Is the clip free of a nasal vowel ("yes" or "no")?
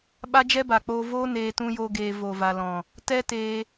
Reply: no